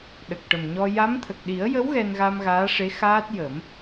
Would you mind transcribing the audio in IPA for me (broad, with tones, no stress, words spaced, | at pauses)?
ɗə˨˩k̚ʈə˨˩mɲɔ˧ ja˧˥mt̪ʰə˨˩k̚ ɗi˨˩˦ə̯jə˧˥w ɣɛ˧n ɣa˧mɣaː˧˥ʂe˧˥ xaː˦˥t̚jə˨˩˦m